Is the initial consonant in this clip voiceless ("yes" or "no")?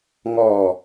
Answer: no